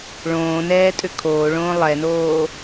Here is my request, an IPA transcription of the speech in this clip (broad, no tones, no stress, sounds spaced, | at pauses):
ɭ õː n ɛː tʼ ʏ kʰ oː ɭ õː lˠ ɛ n oː